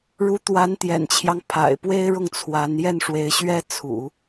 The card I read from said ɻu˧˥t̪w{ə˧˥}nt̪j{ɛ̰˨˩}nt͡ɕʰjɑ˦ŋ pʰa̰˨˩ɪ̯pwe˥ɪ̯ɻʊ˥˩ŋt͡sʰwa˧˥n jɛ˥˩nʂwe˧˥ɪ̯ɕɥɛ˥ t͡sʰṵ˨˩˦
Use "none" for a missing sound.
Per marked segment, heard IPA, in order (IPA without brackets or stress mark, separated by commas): a˧˥, ɛ̰˨˩